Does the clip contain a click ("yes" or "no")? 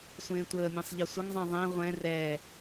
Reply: no